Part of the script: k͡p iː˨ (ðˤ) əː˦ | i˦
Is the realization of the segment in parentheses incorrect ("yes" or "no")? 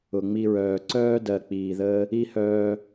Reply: yes